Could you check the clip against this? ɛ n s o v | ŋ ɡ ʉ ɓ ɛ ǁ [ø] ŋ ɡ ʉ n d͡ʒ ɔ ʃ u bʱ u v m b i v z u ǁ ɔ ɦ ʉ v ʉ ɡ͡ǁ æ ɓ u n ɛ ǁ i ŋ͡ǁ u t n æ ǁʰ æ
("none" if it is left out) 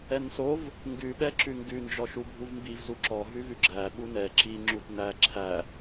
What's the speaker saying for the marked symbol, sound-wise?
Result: ʉ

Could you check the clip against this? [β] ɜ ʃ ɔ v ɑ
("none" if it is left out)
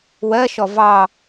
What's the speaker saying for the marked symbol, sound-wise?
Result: w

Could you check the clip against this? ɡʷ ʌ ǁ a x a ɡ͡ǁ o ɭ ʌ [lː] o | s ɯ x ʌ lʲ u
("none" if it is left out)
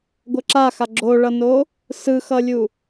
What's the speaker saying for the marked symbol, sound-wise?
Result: n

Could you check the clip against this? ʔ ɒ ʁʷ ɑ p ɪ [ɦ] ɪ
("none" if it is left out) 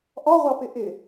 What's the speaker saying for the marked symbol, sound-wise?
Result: ʔ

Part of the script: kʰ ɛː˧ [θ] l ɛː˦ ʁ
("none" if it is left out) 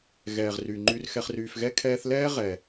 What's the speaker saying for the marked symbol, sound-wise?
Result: θ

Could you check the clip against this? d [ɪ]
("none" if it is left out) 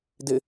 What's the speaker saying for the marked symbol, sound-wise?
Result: ɪ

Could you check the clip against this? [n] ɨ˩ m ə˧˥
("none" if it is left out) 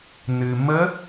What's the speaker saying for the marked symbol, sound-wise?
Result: n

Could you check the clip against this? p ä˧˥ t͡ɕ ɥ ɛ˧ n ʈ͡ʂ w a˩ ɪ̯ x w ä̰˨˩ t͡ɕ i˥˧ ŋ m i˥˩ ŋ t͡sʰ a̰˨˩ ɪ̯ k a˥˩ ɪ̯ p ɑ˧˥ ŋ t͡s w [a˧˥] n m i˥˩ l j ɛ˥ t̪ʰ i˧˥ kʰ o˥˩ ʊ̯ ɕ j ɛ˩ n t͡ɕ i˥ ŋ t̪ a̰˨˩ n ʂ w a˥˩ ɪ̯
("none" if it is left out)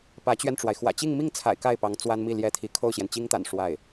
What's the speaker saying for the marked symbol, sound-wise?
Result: a˥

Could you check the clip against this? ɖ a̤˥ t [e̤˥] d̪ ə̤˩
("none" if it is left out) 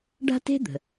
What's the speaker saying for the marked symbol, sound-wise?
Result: e̤˥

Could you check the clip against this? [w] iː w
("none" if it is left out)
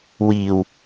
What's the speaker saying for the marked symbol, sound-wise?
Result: w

